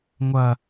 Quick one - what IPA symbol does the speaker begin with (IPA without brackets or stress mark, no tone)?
ŋʷ